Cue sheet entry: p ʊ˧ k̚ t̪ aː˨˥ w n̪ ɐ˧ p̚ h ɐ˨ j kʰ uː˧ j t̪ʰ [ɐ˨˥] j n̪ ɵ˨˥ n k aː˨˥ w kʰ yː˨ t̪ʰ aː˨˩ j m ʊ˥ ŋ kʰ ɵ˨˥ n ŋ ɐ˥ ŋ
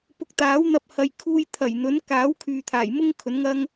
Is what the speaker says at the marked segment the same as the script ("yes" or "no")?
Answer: no